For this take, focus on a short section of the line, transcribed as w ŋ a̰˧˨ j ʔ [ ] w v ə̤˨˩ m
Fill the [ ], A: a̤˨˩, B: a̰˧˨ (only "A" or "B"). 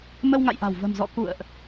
A